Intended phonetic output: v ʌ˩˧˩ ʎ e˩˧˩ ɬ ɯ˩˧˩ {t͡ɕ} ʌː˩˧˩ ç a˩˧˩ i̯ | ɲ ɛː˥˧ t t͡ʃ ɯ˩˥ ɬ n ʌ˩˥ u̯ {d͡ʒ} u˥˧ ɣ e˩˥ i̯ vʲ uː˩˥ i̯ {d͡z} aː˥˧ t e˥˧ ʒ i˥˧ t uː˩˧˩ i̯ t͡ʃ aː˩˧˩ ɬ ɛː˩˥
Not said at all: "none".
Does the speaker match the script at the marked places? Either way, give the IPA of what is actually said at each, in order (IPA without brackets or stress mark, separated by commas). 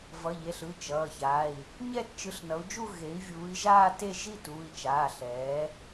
t͡ʃ, d͡ʒ, ʒ